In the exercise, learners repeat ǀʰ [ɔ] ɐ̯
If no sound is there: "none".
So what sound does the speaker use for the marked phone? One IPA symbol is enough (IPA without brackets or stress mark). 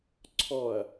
ɔ